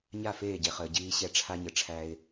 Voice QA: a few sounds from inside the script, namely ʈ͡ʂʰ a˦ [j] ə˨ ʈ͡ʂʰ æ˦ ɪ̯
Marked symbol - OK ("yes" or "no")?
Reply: no